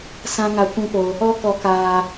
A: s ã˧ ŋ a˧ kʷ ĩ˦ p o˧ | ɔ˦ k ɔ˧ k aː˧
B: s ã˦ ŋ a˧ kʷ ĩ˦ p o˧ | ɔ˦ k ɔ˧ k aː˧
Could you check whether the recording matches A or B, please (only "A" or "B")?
B